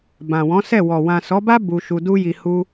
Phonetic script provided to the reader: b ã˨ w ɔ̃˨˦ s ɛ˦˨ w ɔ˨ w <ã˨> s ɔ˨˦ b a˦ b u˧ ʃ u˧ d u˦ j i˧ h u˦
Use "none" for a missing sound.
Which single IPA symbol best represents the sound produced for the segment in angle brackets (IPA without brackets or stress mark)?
ã˨